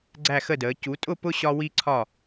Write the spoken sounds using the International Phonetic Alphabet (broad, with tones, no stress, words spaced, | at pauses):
ɡ͡ǀæ˦˨xə˦˨dəː˩˧ cu˩˧tʼʊ˦˨ pʊ˦ ɕɒ˦ wi˦ǀʰɒ˦˨